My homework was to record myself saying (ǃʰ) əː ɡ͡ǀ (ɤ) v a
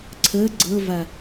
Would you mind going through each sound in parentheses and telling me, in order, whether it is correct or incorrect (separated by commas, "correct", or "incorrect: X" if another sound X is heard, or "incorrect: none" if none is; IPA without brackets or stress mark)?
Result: incorrect: ǀʰ, correct